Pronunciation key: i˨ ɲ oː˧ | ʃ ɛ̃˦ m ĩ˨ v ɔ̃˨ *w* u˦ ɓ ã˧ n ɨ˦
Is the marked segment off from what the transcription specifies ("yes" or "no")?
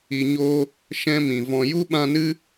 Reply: yes